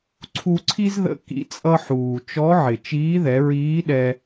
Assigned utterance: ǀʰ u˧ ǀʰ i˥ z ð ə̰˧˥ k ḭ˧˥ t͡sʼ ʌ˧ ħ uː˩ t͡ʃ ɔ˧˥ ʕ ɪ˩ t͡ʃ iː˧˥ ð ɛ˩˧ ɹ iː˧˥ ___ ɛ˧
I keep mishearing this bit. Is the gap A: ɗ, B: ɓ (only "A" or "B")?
A